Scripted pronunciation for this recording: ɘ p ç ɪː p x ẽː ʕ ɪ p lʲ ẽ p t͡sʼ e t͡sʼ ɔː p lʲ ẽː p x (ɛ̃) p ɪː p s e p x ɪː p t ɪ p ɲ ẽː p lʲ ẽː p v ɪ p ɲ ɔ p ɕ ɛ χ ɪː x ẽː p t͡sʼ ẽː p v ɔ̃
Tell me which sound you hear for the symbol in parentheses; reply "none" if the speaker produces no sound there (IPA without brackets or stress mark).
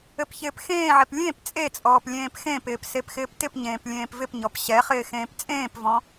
ẽ